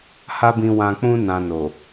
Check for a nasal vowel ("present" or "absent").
present